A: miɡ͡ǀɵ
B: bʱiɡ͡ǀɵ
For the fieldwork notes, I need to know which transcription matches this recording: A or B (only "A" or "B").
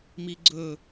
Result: A